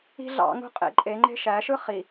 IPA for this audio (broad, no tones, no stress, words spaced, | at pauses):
i̤ ɮɑ̰ŋṳ qʼḛ ǃʼeŋ͡ǃe̤ ʃæʃɯ χi